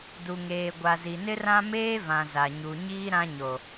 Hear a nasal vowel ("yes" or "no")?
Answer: yes